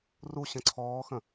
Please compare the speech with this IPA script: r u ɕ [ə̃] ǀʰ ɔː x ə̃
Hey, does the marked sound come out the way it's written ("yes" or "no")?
yes